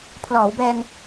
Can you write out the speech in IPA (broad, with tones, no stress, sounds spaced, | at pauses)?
pʰ l ɔː˩˦ w b ɛː˧ ŋ